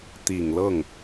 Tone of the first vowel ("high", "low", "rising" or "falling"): low